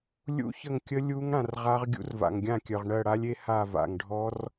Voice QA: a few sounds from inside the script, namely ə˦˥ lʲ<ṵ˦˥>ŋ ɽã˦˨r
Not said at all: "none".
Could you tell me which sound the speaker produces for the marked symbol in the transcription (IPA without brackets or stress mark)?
u˦˥